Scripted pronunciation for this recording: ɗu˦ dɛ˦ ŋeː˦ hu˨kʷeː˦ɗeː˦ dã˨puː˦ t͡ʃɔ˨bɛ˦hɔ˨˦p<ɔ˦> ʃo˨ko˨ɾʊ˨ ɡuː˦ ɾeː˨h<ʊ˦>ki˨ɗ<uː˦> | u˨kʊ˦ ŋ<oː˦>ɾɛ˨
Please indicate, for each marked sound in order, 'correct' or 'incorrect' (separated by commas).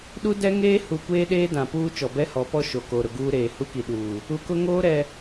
correct, incorrect, incorrect, correct